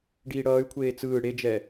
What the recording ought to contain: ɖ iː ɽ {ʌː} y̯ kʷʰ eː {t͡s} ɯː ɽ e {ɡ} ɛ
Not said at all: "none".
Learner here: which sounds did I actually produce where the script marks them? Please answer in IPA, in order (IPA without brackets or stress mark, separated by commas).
ʌː, t͡s, d͡ʒ